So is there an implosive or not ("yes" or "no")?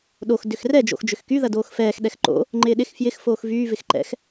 yes